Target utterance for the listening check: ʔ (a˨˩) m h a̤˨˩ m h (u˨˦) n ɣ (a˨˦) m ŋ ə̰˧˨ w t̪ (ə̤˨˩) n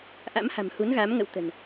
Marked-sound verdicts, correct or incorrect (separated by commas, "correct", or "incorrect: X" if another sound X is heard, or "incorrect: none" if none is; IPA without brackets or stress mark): incorrect: a̰˧˥, correct, correct, correct